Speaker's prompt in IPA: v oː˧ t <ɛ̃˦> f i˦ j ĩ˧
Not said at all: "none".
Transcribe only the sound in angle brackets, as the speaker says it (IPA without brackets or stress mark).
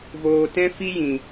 ɛ̃˦